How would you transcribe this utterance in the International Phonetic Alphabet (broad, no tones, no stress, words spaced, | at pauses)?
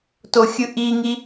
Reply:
toxʲɯʔiŋi